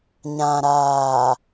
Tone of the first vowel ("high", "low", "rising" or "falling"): low